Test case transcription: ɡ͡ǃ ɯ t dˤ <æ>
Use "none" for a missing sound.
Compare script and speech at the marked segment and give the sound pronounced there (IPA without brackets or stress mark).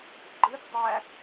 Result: æ